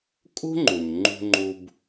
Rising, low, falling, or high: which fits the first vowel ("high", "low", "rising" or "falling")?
high